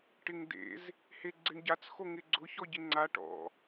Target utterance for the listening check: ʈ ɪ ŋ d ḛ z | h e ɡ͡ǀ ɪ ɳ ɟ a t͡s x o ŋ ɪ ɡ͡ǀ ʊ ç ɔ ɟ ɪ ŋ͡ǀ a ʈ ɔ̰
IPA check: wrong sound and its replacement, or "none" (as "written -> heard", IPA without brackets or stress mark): none